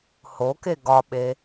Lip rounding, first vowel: rounded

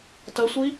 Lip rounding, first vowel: unrounded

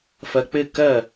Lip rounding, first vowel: unrounded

